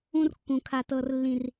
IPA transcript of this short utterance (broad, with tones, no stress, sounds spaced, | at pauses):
ũ˦ r kː ũ˨ kʰ a˨ t ɤ˨ r lː ĩ˨ r